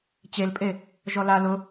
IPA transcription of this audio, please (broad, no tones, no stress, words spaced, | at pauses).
t͡ɕelpʼe | ʒɔla lʊ